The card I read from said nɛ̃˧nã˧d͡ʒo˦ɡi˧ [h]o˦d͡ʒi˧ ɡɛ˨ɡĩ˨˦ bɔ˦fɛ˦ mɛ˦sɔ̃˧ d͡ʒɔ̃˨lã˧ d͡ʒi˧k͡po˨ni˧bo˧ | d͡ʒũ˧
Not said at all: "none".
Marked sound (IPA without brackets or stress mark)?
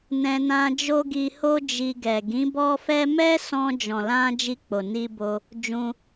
h